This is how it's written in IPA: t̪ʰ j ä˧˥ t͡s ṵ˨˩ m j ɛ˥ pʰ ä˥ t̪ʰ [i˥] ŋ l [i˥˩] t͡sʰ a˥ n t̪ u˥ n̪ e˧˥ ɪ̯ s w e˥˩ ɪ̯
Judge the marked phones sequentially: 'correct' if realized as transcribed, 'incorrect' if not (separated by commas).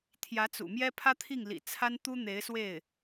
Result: incorrect, incorrect